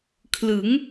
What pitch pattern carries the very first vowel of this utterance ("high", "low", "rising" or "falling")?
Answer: rising